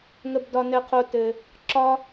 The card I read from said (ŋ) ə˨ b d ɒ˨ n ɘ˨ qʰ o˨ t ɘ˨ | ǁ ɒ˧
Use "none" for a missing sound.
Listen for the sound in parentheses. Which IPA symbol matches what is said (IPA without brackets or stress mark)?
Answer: ŋ